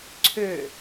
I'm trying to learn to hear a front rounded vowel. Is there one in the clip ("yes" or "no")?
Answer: yes